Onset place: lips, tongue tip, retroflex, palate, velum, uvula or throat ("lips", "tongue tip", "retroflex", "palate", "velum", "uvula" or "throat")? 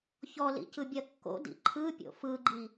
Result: palate